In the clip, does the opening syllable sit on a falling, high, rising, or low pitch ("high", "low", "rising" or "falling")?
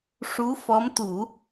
rising